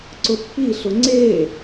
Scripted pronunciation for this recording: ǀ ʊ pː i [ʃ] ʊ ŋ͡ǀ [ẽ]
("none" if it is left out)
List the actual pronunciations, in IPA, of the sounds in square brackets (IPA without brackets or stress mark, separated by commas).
ɬ, e